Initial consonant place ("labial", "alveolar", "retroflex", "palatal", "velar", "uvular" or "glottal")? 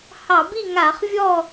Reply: glottal